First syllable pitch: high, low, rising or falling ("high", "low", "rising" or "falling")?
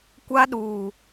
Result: high